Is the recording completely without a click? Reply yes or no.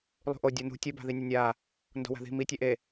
yes